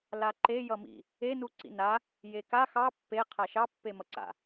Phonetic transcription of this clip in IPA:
laǃe jʌmḭ | e nuǀḭna | jeka xɑ pːe qʰaʃɑ pːemʌǀa̰

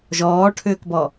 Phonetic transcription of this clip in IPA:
ʒɔːʈʰʏːkbɔ

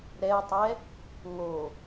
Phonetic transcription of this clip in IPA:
ɾɛy̯tˤɛ | ŋo

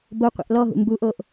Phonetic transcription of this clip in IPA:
boqʷɛ̰ʔ lɔɦṵ mbuʔoʔ

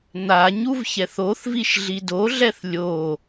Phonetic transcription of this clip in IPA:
n̪a ɲuvçɛθoθviʃ ɮidoɮɛθ lʲo

